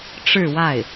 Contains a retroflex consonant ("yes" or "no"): yes